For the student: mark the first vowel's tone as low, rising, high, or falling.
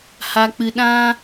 low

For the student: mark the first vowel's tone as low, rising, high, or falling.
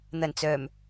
low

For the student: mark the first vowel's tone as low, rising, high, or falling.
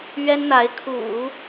high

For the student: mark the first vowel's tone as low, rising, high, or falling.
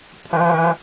high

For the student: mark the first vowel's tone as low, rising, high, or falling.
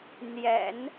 low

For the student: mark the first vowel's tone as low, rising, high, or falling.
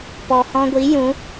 low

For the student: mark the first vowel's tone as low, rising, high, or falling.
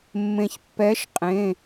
low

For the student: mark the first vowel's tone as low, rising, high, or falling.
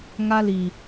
high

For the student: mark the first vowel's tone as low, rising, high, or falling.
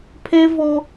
high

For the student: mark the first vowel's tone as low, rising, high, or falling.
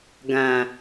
low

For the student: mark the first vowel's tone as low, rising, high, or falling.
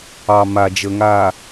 low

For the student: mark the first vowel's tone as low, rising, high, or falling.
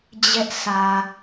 high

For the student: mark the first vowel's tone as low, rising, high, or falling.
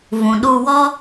low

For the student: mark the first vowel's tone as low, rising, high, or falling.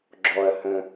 low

